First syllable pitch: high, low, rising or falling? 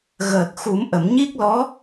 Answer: low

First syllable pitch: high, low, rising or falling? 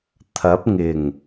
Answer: rising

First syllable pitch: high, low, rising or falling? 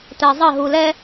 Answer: low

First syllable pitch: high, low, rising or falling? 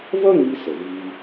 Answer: high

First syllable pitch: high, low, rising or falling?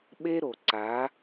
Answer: high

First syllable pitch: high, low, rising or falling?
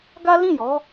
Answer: high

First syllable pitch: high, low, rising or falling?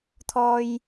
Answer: low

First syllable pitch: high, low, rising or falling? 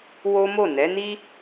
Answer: high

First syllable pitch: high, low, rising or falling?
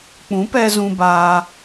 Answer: rising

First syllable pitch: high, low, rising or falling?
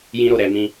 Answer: high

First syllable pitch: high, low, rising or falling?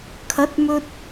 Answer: rising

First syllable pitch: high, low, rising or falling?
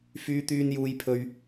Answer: high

